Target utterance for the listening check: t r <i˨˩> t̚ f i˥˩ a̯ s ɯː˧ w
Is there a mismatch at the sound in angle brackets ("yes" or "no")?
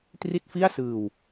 yes